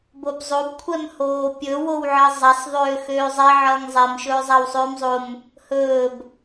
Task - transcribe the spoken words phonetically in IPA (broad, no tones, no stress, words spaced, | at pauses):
bobzˤob kʷʰɛmhoːpʲɵ wowʕʌzˤasˤ ðˤøːxøːzˤɛ ʕʌːŋzˤɛm ʃɵːzˤawsˤøːmzˤom | hɵːb